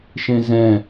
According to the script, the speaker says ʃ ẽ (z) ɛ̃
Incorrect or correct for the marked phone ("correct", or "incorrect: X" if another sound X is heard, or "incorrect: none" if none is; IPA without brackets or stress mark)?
correct